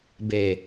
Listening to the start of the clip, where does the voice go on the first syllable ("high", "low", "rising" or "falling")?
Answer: low